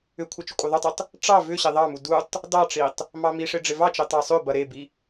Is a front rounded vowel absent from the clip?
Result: no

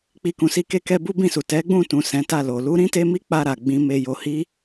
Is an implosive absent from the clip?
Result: yes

